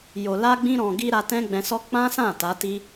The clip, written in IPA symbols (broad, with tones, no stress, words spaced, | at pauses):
jo˨la˧ɡ͡bĩ˧ ɾɔ̃˨ɡi˧ ɾa˧tɛ̃˦ɡ͡bɛ̃˧sɔ˦ k͡pã˦sã˦˨ ta˨˦ti˦